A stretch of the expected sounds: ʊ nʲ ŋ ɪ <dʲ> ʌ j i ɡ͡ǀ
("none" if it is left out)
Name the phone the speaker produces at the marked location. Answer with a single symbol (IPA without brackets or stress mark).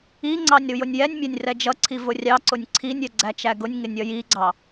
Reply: nʲ